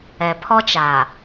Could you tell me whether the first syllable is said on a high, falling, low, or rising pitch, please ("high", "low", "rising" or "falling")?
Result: low